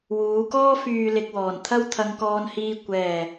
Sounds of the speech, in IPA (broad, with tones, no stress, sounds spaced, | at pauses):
w uː˨˧ k ɔː˥ f yː˨ l ɪ˨ k̚ w ɔː˨˩ n t̪ʰ ɐ˥ w t̪ʰ ɐ˧ ŋ k ɔː˧ n h iː˧ kʷ ɛː˨˩